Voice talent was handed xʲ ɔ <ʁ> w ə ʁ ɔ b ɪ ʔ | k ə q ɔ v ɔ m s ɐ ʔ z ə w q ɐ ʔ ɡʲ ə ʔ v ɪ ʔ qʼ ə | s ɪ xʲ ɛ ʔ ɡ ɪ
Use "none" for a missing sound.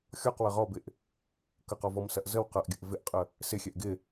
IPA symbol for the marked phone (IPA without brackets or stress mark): q